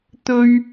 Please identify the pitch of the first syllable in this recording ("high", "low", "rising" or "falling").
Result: high